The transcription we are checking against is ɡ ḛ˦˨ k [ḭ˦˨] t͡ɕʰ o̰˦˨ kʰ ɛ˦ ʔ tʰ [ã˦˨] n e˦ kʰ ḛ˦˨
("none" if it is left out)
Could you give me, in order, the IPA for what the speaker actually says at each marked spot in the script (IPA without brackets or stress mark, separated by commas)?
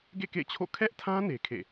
ḛ˦˨, ã˦